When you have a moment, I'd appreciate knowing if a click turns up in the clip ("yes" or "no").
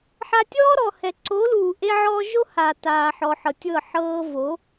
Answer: yes